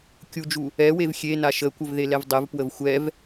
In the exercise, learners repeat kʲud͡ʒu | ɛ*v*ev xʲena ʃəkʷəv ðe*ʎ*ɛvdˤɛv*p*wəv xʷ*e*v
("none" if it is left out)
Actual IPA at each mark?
w, l, p, ɛ

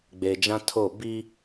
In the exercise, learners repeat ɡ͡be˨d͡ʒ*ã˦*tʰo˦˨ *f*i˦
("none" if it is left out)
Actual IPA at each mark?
ã˦, b

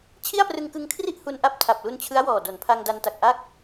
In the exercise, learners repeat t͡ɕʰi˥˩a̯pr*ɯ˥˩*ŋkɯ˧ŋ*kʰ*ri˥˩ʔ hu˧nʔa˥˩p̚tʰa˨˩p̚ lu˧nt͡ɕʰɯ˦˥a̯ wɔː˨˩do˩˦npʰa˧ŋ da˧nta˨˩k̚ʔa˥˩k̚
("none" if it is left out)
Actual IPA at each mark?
ɯ˧, kʰ

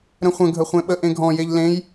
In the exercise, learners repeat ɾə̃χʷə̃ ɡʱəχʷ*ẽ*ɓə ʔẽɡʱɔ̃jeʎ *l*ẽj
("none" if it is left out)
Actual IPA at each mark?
ẽ, l

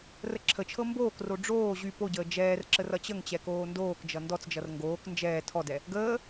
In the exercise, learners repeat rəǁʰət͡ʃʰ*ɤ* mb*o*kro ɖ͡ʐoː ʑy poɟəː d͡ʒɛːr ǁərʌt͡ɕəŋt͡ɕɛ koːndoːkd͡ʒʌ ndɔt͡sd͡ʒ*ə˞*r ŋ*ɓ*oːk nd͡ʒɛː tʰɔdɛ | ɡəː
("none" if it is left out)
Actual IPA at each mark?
ɤ, oː, ʌ, ɡ

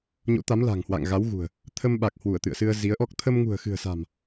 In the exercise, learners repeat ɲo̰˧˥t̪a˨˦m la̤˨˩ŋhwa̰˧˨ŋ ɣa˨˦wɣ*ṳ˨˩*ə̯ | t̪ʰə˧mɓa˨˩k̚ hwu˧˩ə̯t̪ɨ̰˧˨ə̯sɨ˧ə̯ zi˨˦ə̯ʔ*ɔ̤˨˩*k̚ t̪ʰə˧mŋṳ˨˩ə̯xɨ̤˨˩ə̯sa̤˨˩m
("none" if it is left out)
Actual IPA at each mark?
ṳ˨˩, ɔ˦˥

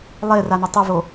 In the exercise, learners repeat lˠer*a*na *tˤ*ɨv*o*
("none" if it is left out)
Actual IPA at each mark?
a, tˤ, o

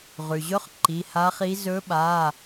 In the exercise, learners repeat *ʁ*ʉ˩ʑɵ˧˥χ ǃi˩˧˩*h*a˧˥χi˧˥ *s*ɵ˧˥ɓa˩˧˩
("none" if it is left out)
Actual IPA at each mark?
ʁ, h, z

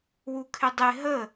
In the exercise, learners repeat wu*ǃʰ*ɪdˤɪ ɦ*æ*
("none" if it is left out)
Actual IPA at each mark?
kʰ, ə

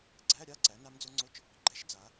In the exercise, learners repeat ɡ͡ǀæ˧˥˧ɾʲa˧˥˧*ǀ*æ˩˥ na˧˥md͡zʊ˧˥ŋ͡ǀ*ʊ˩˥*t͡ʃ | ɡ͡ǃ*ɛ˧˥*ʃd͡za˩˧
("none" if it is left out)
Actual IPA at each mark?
ǀ, ʊ˧˥˧, ɛ˧˥

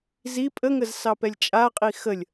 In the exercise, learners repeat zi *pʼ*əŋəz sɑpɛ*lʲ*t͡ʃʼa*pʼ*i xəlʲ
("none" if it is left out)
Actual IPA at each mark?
pʼ, lʲ, qʼ

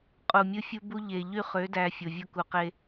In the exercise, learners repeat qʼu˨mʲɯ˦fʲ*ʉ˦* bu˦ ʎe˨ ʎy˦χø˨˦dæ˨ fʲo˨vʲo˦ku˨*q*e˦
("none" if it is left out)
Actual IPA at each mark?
u˦, q

